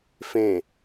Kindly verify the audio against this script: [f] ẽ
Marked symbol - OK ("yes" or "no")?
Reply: yes